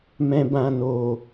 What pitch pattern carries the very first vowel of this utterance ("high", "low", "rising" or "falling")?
low